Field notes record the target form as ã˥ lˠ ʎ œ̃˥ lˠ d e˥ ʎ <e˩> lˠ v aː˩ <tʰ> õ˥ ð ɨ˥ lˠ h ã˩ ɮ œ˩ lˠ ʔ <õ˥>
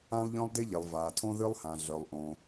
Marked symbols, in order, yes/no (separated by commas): yes, yes, no